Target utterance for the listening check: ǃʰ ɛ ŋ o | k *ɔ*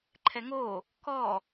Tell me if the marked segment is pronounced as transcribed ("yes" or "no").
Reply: yes